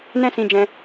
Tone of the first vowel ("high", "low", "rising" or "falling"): high